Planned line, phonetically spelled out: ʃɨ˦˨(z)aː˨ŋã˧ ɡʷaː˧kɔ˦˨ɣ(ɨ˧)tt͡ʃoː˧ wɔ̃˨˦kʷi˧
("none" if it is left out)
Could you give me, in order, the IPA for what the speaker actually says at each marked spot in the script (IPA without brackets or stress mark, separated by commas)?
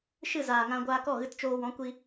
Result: z, ɨ˧